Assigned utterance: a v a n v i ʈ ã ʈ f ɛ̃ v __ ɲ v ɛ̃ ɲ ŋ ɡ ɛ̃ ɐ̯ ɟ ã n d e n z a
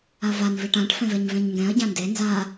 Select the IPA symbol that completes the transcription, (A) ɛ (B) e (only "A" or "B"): A